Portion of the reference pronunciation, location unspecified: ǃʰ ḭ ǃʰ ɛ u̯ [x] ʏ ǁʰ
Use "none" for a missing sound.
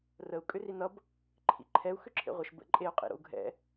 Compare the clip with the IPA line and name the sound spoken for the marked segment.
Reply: x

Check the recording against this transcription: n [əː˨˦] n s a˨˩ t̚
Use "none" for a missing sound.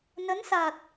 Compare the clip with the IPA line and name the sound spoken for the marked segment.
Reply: ə˨˦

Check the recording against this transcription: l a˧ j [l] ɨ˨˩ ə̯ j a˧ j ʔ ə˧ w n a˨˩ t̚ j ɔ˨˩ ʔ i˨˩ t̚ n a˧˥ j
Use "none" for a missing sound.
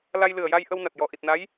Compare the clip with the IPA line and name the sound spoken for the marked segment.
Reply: l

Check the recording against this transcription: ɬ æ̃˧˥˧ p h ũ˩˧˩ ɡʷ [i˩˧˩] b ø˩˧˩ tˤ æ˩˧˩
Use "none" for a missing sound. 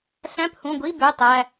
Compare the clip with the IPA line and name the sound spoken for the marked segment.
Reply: i˧˥˧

